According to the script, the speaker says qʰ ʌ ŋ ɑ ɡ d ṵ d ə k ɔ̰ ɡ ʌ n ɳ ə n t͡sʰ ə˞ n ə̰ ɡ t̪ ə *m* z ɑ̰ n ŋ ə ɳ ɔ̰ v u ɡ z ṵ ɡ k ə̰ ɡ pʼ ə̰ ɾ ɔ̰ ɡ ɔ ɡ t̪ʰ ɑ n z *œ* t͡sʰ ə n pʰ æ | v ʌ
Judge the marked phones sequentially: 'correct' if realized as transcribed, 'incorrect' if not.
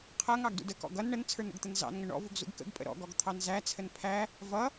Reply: incorrect, incorrect

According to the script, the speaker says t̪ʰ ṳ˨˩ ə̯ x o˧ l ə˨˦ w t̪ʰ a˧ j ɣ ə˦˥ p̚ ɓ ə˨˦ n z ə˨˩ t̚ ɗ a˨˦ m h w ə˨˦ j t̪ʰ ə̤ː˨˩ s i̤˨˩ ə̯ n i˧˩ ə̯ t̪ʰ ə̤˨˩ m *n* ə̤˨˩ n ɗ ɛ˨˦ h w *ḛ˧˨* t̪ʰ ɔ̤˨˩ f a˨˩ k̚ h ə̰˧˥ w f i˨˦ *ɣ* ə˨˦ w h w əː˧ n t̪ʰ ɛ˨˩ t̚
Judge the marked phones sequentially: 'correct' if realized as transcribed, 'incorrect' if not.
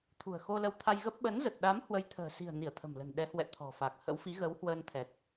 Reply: incorrect, incorrect, correct

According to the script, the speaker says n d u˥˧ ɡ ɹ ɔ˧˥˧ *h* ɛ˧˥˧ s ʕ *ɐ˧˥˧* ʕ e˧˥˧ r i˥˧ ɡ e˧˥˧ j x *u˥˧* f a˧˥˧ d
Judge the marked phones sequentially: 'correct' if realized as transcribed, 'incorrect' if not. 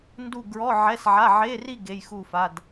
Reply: incorrect, incorrect, correct

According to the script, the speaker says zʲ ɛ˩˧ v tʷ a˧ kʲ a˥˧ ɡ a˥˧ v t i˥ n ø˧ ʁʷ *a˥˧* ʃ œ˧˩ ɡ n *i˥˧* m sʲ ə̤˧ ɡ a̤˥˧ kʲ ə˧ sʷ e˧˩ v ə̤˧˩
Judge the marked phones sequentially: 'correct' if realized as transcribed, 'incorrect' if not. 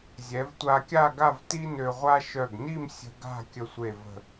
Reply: incorrect, correct

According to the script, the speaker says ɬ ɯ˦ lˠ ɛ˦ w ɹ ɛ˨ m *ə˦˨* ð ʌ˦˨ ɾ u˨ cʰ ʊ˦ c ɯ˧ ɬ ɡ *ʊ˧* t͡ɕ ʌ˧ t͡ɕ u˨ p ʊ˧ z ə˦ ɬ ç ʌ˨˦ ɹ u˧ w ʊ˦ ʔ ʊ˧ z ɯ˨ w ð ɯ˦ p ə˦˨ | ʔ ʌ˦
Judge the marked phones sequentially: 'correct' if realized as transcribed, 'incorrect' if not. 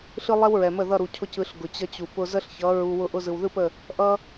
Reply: correct, incorrect

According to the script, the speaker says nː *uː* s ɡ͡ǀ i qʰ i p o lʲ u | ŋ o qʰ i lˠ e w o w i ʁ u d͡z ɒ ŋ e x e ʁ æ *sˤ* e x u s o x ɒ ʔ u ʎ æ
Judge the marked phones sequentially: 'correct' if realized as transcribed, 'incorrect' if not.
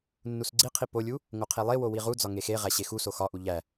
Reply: incorrect, incorrect

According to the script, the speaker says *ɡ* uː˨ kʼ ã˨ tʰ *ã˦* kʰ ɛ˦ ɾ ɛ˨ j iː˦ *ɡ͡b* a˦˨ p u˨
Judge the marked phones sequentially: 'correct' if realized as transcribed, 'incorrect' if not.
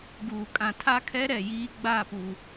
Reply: correct, incorrect, correct

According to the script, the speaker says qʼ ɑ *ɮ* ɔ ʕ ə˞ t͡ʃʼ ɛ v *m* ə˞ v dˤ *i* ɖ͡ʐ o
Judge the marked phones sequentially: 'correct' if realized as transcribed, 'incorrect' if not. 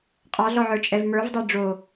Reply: correct, correct, incorrect

